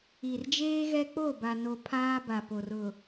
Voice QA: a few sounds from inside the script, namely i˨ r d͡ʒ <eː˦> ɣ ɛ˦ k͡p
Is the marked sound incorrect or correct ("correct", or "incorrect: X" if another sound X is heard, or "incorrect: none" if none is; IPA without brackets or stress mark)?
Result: correct